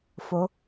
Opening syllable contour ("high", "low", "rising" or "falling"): rising